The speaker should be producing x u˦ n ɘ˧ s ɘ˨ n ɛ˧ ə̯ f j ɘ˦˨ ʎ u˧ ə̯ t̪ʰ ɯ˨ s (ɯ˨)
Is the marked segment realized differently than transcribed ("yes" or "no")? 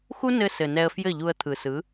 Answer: yes